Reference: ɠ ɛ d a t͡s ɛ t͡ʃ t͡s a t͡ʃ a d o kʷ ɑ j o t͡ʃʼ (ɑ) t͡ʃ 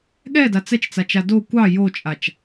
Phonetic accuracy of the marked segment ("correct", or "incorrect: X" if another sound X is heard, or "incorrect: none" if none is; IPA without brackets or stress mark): incorrect: a